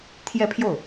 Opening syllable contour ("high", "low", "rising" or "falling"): falling